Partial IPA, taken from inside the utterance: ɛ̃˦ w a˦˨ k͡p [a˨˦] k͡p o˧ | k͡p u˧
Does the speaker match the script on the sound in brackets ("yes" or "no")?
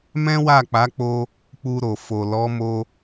yes